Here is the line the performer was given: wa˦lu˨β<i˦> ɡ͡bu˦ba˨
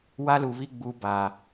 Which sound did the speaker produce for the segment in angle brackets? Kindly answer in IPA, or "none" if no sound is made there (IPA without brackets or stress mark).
i˦